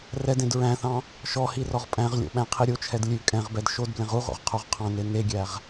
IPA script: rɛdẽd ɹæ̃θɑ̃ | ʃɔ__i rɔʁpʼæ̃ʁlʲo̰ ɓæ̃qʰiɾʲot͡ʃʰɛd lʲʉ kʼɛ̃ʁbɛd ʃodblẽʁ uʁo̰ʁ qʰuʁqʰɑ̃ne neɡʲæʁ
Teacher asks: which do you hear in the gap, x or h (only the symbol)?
h